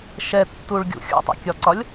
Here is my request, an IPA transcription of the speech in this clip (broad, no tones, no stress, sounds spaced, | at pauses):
ʃ ɛ tː u ɭ ɡʲ ṵ xʲ ṵ tˤ ɛ̰ kʲ ɒ ǀ ɒ lʲ